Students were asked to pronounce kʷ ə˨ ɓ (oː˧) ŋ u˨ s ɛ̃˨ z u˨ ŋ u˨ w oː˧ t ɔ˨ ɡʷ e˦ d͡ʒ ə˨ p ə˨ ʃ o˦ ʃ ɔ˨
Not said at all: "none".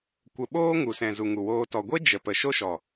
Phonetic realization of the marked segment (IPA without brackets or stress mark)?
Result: oː˦